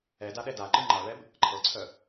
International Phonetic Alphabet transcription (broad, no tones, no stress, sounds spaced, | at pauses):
ɛ d a ɗ ɛ d a ǃ ɯ ŋ͡ǃ a ɭ ɛ b | ǃʰ ɤ ǀʰ œ